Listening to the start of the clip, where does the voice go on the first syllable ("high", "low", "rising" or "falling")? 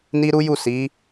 high